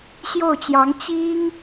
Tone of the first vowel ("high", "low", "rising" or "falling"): falling